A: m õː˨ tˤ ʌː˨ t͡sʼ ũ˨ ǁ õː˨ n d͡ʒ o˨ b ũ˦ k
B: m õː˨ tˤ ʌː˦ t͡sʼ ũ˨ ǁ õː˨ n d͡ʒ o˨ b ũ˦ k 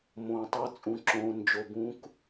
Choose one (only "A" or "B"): B